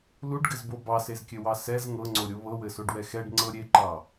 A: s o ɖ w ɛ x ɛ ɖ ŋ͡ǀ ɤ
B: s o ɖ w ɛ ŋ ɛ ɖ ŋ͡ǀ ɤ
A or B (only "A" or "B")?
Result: A